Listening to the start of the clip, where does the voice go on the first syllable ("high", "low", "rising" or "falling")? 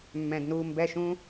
low